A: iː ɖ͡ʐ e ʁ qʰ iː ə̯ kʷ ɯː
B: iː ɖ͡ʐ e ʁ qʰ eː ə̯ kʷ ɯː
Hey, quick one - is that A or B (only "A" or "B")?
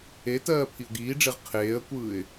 B